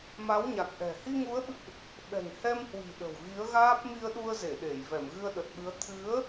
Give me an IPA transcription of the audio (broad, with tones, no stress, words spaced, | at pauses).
ma˨˦wɲa˨˩k̚ʔɛ̤˨˩ hi˧ŋu˨˦ə̯ɓɨ̰˧˨ʔ | ɓɛ̤˨˩ŋ hɛ˧mhwi̤˨˩ ɗə̤˨˩wɣi˨˦ə̯ɣaː˦˥p̚ mi˧ə̯ɗu˧ə̯ze˧˩ɗe˧˩j vɛ˧˩mɣɨ˧ə̯ɗə˨˩t̚ɓɨ˨˦ə̯ t̪ʰɨ˨˦ə̯